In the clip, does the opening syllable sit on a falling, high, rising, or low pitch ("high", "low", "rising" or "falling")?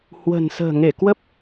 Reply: low